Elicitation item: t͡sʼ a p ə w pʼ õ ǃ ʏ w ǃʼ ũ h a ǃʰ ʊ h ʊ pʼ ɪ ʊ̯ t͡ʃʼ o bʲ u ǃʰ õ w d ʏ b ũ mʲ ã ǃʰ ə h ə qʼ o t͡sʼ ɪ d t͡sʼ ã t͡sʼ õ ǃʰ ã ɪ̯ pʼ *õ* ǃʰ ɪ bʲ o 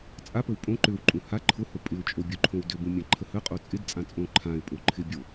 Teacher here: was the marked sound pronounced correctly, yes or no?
no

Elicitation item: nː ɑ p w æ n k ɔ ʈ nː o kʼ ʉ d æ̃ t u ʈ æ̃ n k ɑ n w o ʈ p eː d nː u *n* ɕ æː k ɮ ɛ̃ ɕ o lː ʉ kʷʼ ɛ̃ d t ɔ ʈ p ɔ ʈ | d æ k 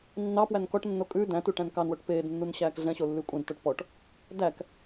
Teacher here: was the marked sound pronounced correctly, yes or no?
yes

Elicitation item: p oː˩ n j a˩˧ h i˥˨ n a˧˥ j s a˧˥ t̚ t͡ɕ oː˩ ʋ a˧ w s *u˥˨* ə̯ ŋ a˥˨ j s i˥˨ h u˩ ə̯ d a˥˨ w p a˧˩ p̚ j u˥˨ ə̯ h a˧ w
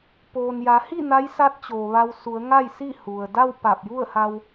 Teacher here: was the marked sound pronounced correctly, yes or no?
no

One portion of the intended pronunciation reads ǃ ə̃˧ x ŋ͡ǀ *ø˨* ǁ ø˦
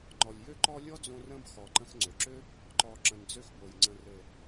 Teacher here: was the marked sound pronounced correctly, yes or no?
yes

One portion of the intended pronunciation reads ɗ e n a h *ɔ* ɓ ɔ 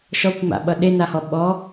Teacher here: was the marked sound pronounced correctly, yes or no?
yes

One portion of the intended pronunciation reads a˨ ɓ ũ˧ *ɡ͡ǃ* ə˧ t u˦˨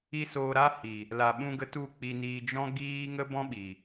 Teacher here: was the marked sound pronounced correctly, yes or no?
no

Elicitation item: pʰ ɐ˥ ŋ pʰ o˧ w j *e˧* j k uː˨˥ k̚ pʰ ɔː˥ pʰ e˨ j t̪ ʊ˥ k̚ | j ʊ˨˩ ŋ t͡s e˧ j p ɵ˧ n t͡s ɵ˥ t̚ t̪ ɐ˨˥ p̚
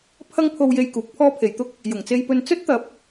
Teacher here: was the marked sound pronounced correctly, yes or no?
yes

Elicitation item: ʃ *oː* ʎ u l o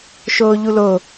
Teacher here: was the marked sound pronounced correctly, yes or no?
yes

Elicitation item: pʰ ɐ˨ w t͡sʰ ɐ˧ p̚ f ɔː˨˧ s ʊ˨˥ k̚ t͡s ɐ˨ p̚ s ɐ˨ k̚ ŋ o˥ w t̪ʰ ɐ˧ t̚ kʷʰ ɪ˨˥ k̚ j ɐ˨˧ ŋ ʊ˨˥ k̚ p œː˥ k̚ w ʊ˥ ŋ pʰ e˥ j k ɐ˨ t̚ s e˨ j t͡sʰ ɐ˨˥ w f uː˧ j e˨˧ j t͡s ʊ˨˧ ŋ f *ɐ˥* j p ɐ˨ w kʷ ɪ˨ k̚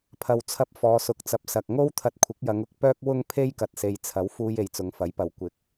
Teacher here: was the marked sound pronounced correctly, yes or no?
no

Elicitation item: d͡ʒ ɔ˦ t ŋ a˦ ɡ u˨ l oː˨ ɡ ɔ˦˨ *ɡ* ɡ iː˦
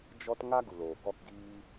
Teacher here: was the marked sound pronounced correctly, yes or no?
no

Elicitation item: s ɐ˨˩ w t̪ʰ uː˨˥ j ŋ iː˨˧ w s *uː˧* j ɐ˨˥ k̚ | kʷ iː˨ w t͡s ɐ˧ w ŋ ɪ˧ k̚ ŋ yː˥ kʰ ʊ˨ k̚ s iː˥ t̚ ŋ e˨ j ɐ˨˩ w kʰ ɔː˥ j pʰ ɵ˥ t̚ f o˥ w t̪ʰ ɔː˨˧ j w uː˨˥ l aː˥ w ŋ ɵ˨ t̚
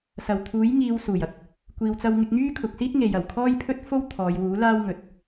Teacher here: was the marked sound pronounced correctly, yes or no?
no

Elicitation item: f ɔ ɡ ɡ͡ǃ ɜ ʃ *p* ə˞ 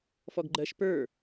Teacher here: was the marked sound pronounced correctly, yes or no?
yes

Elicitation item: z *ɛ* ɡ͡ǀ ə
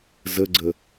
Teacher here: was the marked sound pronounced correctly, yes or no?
no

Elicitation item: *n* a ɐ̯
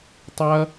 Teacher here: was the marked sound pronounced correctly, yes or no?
no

